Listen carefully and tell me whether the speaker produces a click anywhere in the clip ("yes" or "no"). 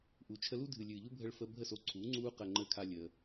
yes